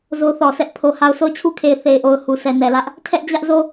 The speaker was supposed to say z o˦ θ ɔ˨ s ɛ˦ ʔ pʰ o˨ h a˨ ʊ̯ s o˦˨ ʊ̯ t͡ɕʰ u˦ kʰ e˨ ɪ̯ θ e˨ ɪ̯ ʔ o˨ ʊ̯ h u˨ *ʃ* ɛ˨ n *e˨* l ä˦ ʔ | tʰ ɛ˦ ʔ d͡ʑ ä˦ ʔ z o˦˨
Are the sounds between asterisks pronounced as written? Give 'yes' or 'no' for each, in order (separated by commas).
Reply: no, no